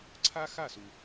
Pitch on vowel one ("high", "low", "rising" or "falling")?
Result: high